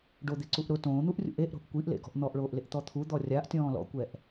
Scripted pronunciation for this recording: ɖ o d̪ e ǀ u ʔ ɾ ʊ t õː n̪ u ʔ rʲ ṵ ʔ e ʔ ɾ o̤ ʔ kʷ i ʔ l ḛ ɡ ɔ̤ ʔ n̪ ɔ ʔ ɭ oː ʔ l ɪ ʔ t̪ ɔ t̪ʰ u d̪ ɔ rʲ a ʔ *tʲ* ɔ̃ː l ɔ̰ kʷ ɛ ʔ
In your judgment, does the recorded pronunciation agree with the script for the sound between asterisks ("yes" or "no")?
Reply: yes